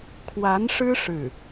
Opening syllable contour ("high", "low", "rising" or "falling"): rising